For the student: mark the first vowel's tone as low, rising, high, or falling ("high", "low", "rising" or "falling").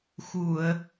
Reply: low